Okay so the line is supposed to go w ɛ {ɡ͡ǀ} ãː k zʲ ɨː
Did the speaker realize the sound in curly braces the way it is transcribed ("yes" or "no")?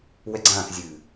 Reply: yes